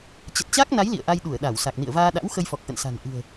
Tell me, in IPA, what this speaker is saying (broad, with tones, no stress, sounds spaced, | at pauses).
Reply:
t͡ɕ ə˨˩ t̚ t͡ɕ a˦˥ k̚ n a˨˦ j l ḭ˧˨ ə̯ ʔ a˧ j ɗ u˧˩ ə̯ ɗ a˧˩ w s a˨˩ k̚ n ḭ˧˨ ə̯ v aː˧ ɗ a̰˧˥ w x ə˧ j f ɔ˨˩ k̚ ʔ ə̰˧˨ n s a̤˨˩ n ʔ ɨ̤˨˩ ə̯